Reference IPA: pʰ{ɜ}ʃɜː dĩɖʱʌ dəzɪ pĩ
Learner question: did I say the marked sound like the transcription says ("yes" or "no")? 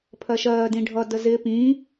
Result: yes